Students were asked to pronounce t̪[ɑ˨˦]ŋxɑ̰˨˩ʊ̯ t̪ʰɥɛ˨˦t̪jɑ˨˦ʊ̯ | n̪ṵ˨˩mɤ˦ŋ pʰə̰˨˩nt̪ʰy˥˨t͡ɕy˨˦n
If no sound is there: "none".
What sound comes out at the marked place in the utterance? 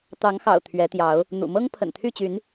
ɑ˨˦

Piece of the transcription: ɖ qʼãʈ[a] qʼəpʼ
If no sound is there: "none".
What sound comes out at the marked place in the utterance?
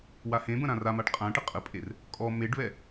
ə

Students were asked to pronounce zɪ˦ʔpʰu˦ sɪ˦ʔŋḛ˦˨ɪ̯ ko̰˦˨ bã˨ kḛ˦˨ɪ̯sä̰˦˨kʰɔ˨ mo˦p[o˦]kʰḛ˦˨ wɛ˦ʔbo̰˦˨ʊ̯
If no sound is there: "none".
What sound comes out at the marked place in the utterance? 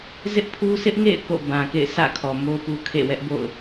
u˦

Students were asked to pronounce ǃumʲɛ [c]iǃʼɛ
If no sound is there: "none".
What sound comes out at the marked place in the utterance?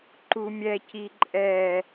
c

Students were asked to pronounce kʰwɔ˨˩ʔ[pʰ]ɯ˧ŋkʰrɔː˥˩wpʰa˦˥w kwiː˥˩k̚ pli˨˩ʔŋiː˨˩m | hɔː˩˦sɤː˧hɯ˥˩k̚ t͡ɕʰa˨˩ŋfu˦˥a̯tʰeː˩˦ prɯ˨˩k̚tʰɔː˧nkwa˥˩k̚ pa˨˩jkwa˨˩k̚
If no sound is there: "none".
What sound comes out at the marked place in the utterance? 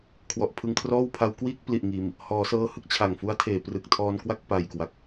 pʰ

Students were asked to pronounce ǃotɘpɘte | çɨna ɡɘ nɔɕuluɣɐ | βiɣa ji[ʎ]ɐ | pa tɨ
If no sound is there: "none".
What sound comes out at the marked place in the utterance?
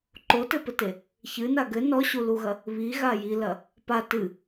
l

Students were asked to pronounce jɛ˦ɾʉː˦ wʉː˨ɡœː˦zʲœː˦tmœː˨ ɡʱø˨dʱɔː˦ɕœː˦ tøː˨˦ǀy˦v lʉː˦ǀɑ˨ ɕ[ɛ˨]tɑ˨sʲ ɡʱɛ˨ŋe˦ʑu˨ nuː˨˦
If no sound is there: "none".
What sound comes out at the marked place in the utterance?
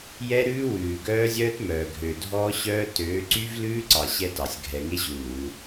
ɛ˦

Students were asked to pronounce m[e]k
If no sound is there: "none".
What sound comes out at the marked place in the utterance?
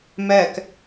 ɛ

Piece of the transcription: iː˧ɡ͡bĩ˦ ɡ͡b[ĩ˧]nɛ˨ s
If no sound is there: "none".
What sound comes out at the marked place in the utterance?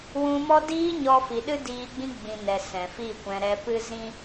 ĩ˧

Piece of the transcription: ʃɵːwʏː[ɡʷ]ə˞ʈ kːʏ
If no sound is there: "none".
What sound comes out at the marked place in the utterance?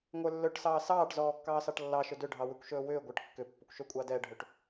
ɡʷ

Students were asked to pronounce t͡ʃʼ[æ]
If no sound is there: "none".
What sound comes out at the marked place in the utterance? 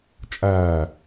æ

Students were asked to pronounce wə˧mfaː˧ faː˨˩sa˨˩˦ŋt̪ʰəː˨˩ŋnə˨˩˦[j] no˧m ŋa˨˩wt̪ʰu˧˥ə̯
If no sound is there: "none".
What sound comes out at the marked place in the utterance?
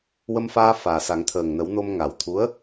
w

